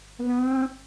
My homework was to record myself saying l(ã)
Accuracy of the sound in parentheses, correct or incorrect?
correct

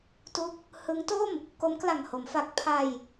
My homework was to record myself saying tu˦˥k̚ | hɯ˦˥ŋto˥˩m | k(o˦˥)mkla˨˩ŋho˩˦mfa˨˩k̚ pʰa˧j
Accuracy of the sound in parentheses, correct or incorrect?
correct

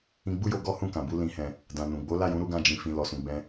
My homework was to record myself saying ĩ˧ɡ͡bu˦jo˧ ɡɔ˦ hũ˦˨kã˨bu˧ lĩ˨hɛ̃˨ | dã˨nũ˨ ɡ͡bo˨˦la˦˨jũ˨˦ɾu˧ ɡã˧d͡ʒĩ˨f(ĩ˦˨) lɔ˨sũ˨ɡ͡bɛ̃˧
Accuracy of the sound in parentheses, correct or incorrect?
incorrect: ĩ˨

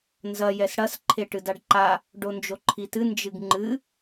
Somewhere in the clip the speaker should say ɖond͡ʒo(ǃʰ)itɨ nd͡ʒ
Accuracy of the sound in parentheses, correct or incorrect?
correct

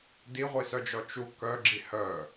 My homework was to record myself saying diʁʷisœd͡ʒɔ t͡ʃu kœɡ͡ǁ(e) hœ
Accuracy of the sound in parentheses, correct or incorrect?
incorrect: i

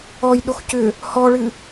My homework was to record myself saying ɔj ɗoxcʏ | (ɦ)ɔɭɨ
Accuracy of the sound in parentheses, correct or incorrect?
incorrect: h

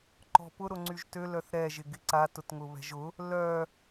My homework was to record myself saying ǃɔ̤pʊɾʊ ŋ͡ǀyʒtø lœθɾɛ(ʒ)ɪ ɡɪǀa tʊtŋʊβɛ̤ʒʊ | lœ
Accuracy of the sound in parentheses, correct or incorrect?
correct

